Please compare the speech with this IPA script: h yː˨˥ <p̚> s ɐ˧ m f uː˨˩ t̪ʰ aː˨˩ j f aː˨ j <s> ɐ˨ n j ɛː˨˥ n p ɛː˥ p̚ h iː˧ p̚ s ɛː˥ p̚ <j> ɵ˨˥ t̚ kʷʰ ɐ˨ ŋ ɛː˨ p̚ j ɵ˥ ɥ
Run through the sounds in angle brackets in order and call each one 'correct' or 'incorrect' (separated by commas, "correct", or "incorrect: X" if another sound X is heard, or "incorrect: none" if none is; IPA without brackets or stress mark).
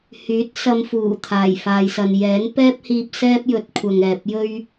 incorrect: t̚, correct, correct